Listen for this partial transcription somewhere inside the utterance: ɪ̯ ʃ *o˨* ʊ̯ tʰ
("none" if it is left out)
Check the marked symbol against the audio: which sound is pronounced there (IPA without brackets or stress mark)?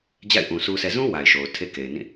o˨